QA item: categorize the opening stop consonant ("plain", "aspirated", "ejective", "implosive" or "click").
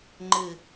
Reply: click